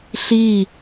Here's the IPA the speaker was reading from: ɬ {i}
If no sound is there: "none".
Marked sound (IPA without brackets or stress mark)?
i